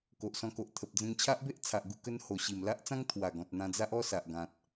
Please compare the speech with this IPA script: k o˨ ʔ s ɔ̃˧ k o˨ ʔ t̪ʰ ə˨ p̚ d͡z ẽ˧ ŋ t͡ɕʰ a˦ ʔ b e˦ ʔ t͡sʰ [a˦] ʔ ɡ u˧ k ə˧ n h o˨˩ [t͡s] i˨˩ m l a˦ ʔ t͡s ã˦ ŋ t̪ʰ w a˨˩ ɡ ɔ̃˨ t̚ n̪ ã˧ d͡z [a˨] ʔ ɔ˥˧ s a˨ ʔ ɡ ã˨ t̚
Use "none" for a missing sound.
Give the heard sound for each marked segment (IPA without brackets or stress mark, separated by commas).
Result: a˨, ɕ, a˦